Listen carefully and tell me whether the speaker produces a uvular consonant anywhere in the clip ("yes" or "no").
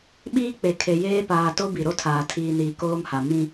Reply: no